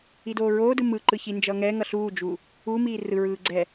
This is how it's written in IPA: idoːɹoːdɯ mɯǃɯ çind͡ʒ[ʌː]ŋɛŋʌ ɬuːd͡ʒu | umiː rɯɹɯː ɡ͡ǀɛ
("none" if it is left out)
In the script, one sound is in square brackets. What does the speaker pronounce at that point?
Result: ʌː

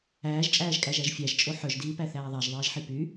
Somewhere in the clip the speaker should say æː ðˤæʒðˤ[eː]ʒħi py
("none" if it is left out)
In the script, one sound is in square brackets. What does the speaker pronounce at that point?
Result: eː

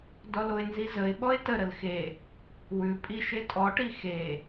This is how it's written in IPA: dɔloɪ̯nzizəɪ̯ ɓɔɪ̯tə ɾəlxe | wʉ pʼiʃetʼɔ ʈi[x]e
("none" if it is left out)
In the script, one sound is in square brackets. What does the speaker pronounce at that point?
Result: x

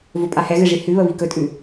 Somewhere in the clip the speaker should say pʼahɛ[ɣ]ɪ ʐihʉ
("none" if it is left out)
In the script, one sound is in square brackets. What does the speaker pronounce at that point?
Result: ɣ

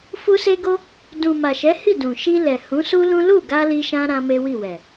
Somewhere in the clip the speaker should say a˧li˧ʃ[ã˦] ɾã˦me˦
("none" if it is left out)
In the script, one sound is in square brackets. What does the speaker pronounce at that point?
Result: ã˧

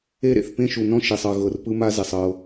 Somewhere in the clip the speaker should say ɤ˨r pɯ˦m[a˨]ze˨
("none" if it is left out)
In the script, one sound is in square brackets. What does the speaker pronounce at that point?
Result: a˦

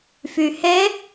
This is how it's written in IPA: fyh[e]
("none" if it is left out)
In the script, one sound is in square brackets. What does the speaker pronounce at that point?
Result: e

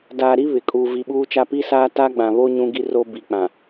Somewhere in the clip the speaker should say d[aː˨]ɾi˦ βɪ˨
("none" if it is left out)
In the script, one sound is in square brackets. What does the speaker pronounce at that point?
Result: aː˨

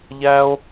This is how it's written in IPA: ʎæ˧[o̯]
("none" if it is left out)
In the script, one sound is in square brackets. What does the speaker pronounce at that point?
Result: o̯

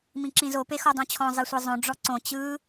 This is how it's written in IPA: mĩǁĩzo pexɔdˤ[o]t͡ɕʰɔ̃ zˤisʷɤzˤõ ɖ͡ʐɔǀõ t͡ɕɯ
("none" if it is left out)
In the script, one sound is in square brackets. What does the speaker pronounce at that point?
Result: õ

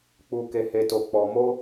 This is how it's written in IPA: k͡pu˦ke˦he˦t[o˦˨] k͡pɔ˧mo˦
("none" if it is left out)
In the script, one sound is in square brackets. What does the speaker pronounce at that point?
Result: o˦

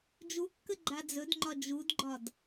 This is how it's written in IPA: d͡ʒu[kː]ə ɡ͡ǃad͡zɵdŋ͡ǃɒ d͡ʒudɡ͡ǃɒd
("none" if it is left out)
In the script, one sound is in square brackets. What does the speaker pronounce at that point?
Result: kː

